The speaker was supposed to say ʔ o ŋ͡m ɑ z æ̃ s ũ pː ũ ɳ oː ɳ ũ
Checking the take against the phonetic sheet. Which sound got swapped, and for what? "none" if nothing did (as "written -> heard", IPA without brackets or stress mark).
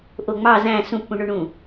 oː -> o